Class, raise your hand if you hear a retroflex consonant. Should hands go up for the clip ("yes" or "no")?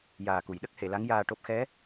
yes